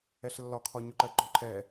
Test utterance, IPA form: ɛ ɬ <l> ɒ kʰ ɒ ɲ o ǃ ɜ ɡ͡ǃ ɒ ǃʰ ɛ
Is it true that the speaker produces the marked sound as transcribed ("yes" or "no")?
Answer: no